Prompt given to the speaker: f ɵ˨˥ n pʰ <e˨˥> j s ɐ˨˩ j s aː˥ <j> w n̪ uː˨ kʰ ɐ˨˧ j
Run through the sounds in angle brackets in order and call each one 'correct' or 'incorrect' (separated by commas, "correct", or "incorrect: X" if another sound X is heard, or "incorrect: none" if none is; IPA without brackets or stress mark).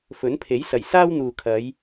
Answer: correct, incorrect: none